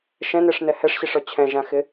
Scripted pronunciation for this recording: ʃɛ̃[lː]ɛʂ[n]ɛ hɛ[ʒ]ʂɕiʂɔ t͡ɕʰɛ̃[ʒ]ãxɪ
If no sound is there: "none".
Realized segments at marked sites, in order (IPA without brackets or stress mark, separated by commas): n, n, none, ʒ